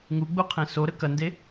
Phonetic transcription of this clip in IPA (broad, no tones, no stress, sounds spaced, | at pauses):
ŋ u ɡ͡b u qʰ ẽ s o ɾ ə k ɐ n d e